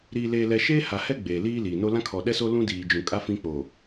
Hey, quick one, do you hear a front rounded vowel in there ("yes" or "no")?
no